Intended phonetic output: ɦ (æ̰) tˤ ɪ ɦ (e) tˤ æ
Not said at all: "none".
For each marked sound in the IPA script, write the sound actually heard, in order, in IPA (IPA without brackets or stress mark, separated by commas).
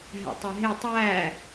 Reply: æ̰, e